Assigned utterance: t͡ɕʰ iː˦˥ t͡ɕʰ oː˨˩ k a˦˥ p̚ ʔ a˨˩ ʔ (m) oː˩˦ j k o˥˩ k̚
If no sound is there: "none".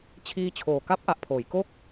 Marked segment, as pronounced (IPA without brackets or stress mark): pʰ